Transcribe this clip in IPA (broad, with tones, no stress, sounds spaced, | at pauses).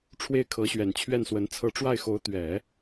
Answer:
ʈ͡ʂʰ w e˥˩ ɪ̯ kʰ ɤ˧˥ ɕ ɥ ɛ˨˩ n t͡ɕʰ ɥ ɛ˥˩ n s w ə˧˥ n t͡sʰ ɤ˧˥ ʈ͡ʂ w a˥˩ ɪ̯ x o˧˥ ʊ̯ t̪ ɥ ɛ˨˩˦